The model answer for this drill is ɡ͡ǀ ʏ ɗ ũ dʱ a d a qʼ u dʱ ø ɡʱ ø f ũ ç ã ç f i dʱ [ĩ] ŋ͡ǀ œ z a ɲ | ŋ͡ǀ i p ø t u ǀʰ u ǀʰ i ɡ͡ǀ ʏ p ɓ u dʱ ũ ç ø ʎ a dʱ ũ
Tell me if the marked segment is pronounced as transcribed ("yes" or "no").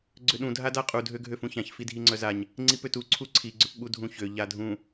no